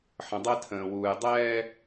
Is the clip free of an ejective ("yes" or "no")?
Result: yes